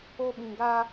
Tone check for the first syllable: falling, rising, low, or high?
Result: high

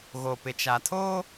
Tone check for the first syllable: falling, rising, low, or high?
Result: low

